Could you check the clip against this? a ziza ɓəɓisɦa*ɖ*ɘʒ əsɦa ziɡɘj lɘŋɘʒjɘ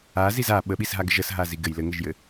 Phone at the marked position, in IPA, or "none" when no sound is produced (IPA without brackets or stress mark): ɡ